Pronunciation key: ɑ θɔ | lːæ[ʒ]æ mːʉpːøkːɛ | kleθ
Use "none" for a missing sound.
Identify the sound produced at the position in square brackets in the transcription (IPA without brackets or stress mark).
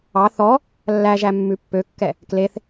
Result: ʒ